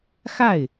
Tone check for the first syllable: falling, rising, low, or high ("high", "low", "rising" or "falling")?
falling